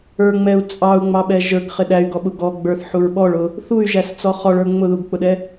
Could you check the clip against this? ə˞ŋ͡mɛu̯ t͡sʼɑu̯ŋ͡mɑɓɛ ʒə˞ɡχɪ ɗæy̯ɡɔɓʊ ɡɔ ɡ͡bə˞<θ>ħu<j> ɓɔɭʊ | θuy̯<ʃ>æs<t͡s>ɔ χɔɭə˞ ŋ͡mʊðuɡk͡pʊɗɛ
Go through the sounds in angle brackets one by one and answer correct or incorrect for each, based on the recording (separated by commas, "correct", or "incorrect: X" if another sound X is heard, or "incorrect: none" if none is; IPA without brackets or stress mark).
correct, incorrect: ɹ, incorrect: ʒ, correct